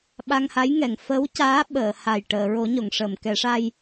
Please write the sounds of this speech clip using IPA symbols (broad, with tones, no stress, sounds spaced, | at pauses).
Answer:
ɓ a˧ ŋ h a˧˥ j ŋ ɛ˨˩˨ ŋ f ə˧˥ w c aː˧˥ ɓ əː˨˩˨ h a˨˩ j ʈ əː˨˩˨ ɹ o˨˩˦ ɲ o˨˩˨ ŋ ʂ əː˨˩˨ m k ɛ˨˩˦ ʂ a˧ j